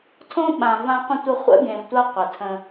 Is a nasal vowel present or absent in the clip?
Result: present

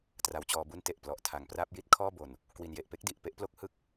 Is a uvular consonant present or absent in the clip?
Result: absent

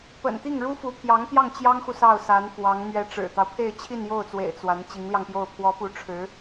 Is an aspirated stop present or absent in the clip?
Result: present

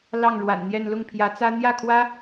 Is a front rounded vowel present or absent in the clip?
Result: absent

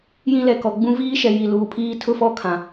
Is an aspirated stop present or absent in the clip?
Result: present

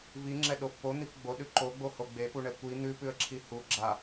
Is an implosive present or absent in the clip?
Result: present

